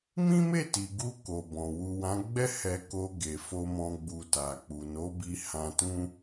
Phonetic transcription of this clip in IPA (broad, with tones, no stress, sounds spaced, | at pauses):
m ĩ˦ m e˦˨ t i˨ ɡ u˧ k o˨ b ɔ̃˨ w u˨ w ã˨˦ ɡ͡b ɛ˦ h ɛ˧ k o˧ ɡ e˨ f o˧ m ɔ̃˧ ɡ͡b u˧ t a˨ k͡p u˨ n o˨˦ b i˧ h ã˧ t ũ˦